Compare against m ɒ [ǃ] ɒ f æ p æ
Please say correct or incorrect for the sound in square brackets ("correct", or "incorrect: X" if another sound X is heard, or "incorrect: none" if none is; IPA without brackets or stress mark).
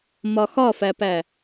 incorrect: x